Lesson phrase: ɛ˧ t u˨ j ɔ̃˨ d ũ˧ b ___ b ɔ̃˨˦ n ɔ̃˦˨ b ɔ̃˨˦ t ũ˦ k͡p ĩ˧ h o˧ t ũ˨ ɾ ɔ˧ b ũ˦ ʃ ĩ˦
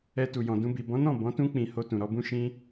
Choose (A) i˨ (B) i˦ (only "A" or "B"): A